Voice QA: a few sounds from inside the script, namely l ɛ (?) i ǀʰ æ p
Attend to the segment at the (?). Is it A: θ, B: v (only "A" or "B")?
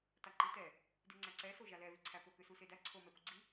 B